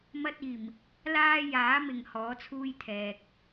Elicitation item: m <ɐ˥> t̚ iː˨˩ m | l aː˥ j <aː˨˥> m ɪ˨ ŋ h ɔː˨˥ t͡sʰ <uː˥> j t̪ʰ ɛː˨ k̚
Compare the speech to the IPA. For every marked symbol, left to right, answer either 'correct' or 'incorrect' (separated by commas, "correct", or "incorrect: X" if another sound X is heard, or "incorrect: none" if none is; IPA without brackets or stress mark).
correct, correct, correct